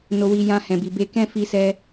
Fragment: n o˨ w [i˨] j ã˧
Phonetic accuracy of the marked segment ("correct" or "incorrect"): correct